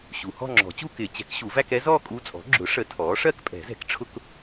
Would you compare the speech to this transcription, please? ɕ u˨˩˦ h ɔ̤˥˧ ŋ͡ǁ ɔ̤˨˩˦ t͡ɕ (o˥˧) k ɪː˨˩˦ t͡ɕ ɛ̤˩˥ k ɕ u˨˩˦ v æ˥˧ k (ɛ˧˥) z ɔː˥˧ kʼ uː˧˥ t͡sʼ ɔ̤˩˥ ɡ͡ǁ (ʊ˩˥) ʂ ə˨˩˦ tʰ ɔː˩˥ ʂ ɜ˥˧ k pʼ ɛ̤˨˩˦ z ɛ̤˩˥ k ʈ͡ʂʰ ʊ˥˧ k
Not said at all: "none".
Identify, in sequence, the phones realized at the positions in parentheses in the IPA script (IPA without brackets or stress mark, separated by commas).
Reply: u˥˧, ɛ˧˥, ʊ˩˥